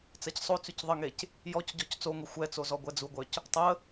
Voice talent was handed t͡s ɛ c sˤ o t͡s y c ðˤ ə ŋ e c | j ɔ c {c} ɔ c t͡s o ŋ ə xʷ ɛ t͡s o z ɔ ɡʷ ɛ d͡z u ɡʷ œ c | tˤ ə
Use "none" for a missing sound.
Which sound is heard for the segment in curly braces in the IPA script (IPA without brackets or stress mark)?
ɟ